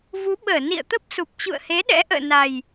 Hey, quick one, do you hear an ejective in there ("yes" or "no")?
no